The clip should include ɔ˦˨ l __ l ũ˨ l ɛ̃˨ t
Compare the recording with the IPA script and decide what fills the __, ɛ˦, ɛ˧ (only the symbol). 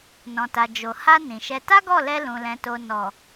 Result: ɛ˧